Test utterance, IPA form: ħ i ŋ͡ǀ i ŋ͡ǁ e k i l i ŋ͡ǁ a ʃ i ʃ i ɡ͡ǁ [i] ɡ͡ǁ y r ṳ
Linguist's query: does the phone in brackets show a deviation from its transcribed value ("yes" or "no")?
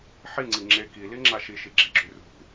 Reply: no